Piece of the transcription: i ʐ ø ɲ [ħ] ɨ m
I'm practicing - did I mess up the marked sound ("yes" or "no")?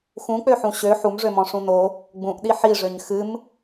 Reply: yes